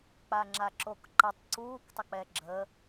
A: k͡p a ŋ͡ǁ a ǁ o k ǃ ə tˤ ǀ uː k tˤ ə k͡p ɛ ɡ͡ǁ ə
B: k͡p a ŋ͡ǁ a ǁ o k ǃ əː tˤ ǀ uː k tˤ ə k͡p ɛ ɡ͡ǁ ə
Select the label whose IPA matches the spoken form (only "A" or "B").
A